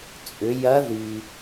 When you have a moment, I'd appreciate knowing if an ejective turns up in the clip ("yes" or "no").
yes